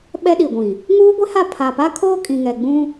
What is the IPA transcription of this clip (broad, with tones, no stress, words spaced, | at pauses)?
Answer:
ɓɛ˦ɗi˨ɡʷĩ˨ | ŋuː˦ɡʷe˦ha˦˨ pʰa˨pa˦kʰoː˦ kʼĩ˨ŋɛ˨ɡ͡bũ˦